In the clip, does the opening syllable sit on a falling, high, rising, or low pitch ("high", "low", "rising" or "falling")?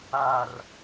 low